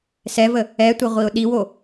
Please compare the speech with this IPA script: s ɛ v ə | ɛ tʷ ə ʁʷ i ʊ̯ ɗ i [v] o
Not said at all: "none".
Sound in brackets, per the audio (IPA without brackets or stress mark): w